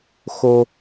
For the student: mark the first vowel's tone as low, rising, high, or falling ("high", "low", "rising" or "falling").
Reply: high